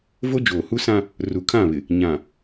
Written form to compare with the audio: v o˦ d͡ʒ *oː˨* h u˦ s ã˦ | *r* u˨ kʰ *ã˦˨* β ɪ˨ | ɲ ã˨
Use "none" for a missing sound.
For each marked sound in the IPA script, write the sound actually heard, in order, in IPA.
oː˨, r, ã˦˨

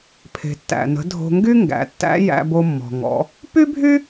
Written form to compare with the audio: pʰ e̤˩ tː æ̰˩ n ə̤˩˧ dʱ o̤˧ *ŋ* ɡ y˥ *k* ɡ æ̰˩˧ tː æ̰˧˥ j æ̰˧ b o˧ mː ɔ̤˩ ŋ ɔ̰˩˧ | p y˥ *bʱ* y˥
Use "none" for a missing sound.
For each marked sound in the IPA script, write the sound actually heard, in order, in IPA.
ŋ, ŋ, bʱ

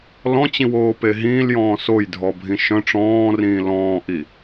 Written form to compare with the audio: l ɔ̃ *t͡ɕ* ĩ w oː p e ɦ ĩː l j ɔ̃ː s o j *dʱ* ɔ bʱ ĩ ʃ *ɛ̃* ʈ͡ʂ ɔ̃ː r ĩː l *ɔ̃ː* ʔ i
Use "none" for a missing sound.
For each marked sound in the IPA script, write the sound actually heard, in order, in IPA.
t͡ɕ, dʱ, œ̃, ɔ̃ː

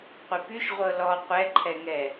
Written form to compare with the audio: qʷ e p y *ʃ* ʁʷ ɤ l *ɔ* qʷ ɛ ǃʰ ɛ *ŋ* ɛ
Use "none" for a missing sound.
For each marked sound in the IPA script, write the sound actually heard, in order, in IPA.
ʃ, ɔ, ŋ

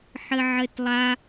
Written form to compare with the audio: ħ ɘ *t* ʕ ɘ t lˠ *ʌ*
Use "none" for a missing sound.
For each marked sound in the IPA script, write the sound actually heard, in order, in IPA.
none, a

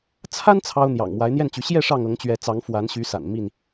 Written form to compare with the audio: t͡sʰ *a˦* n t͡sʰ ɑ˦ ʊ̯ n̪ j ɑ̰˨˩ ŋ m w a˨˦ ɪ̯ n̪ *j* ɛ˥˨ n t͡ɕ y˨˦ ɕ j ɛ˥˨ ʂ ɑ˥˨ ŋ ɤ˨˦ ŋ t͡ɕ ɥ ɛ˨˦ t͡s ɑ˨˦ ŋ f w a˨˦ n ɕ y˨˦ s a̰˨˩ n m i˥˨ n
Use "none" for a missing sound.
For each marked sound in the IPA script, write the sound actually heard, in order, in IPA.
a˦, j

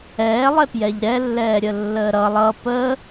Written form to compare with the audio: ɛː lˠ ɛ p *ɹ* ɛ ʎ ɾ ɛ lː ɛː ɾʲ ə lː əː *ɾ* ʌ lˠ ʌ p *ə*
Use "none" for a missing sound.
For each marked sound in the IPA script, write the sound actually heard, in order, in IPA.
j, ɾ, ə

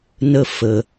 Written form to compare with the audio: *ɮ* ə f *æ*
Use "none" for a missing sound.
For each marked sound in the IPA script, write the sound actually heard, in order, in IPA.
n, ə

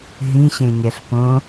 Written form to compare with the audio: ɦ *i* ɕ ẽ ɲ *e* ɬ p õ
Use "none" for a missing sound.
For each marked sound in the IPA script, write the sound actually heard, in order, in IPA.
ĩ, ɛ

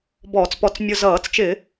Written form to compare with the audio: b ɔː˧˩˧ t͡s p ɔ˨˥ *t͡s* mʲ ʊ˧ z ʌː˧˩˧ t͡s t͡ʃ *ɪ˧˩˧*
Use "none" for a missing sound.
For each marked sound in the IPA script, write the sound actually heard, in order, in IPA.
t͡s, ɪ˧˩˧

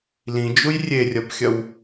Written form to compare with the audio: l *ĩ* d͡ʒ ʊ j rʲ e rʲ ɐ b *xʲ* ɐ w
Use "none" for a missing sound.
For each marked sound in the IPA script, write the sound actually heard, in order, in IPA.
ĩ, xʲ

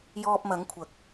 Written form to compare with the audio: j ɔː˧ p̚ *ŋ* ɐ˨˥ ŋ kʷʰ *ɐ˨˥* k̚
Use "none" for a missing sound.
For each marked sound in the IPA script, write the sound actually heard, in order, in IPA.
m, ɐ˨˥

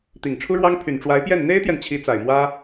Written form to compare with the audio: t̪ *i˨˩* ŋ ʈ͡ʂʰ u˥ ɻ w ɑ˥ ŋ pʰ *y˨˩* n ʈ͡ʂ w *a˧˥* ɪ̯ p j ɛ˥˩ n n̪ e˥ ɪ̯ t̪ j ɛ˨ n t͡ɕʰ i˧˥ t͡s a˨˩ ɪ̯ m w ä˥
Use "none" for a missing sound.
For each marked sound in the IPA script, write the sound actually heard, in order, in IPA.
i˨˩, y˨˩, a˧˥

